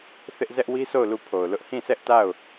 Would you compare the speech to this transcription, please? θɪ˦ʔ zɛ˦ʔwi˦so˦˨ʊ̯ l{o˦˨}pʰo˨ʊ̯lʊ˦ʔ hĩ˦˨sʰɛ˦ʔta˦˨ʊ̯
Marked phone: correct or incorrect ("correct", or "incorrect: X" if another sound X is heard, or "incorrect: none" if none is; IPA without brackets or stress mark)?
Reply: incorrect: u˦˨